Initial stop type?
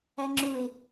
click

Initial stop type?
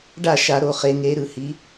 plain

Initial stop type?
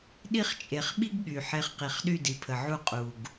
implosive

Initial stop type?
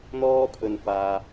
aspirated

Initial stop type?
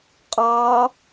ejective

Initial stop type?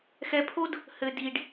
aspirated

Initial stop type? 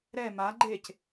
click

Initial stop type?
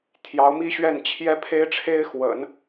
aspirated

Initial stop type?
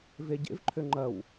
plain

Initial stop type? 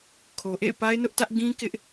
aspirated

